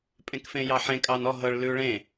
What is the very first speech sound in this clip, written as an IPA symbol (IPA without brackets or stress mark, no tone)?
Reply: pʼ